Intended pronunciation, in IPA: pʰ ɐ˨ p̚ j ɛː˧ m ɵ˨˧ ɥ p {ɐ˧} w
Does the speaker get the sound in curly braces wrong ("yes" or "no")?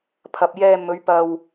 no